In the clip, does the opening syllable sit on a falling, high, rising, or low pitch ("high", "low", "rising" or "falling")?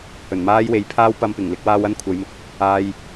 low